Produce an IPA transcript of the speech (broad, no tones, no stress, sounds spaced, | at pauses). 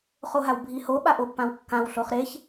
χ o ɦ a w bʱ i h o ɓ a ʔ o pː ã w kː ã w ɬ o χ ɾ e ç